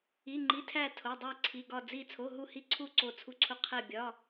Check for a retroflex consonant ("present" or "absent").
absent